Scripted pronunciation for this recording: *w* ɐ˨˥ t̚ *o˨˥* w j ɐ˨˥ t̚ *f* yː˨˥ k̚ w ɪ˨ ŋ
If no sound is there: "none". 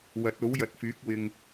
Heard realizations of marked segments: w, o˨˥, f

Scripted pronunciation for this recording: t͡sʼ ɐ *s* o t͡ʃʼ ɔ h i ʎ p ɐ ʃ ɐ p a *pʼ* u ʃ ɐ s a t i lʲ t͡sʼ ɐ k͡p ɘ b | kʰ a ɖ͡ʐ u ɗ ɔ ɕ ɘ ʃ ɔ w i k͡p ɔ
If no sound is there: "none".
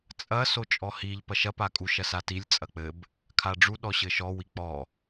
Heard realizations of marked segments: s, kʼ

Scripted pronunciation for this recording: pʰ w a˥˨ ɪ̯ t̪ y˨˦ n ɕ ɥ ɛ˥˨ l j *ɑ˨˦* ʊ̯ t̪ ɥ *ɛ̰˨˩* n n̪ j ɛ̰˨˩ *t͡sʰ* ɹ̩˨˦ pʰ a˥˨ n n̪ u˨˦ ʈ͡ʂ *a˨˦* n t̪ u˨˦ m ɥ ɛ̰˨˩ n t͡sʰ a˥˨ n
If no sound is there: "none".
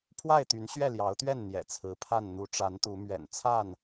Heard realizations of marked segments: ɑ˨˦, ɛ˥˨, t͡sʰ, a˨˦

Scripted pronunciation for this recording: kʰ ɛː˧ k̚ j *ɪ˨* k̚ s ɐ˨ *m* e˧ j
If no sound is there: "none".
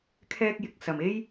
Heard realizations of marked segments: ɪ˨, m

